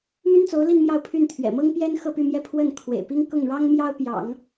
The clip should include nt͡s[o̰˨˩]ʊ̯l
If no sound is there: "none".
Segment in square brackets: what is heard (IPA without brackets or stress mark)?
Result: o˧˥